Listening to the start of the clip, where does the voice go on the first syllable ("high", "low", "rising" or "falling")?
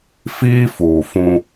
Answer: high